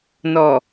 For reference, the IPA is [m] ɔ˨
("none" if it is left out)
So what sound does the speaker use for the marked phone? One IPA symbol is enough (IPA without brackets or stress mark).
n